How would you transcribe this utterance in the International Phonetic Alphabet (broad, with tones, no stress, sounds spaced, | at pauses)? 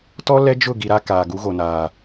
t ɔ˦ l ɛ˦ d͡ʒ ʊ˦˨ ɡ i˨ ɾ a˦ k aː˨ ɡ u˨˦ ɣ o˨ n aː˨